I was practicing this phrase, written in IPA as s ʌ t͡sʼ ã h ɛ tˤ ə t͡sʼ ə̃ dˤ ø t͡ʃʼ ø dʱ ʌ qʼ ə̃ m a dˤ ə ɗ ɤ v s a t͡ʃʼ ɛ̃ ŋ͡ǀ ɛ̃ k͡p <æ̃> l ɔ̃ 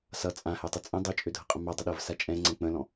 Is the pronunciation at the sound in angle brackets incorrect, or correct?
incorrect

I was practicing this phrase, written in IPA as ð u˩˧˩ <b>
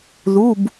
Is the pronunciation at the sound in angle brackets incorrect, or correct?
correct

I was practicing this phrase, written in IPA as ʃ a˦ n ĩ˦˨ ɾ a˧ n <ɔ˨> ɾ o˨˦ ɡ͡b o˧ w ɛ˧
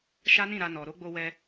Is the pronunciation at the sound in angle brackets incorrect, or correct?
correct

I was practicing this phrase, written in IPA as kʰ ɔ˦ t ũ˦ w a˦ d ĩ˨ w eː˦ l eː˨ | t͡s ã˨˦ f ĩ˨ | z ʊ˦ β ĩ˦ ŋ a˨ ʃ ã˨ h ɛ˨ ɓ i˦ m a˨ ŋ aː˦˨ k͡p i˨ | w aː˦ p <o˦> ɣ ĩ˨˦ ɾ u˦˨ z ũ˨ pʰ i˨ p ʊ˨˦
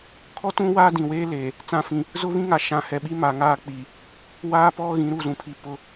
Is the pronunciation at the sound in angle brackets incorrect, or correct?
incorrect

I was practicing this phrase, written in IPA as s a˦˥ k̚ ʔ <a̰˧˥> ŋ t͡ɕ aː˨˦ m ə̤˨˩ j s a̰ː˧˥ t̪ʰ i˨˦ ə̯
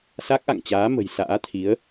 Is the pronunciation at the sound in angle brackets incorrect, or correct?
incorrect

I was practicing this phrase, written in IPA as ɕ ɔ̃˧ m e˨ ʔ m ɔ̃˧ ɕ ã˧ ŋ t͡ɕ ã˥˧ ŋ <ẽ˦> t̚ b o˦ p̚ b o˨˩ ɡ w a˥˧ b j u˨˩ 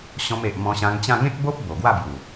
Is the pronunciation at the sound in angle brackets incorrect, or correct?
correct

